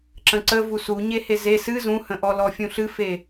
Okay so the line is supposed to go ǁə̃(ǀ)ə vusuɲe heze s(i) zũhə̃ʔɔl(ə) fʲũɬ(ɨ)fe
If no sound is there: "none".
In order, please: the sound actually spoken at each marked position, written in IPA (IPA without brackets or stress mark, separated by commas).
ǀ, ɨ, ɔ, ɨ